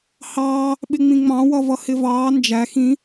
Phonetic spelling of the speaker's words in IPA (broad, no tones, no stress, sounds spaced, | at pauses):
h ɑː | ɓ ɪ ŋ͡m ĩ ŋ͡m ɑ̃ w ʌ v ʌ h ɪ v ɑː n d͡ʒ æ x ĩ